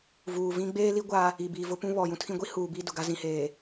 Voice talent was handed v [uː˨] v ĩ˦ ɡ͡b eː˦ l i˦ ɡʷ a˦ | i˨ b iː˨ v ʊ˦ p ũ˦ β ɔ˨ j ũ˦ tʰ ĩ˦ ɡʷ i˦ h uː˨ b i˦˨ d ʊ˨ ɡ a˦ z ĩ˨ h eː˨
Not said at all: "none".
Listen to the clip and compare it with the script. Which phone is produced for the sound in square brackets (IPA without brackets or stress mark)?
uː˨